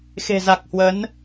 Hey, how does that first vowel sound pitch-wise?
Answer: low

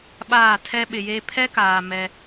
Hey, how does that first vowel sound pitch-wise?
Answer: falling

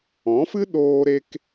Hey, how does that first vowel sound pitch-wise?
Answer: rising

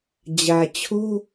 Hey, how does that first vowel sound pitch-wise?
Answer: low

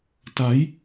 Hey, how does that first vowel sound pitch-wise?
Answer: rising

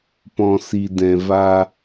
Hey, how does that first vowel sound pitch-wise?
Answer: low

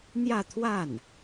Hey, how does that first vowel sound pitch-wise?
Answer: falling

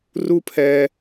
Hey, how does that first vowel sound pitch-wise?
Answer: high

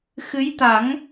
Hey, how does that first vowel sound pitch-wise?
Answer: rising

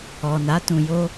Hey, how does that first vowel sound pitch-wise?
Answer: low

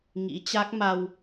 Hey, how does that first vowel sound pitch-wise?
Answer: rising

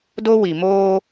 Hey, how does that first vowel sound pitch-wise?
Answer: high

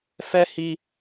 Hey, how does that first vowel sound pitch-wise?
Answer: high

